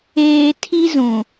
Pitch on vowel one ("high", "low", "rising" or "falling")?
low